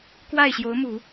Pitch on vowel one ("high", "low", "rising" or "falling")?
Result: falling